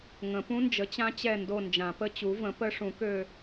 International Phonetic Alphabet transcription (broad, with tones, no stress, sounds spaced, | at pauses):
ŋ ə̃˨˩˦ p ũ˦˥ n d͡ʒ ə˩˥ t͡ɕ ã˦˥ t͡ɕ ɛ˦˨ n d o˦˨ n d͡ʒ ã˨˩˦ p ə˦˥ t͡ɕ u˩˥ v ə̃˩˥ p ə˦˥ ʂ ũ˩˥ k ø˦˨